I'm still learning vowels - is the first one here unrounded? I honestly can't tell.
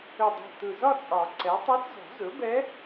no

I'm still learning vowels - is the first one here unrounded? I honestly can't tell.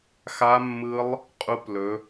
yes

